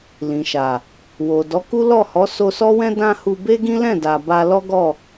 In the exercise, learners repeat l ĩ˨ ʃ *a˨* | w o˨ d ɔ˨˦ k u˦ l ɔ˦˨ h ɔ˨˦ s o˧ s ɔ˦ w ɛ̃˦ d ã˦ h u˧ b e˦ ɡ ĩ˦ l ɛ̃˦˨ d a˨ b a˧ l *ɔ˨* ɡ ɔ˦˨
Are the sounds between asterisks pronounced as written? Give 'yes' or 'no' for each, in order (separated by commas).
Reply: yes, no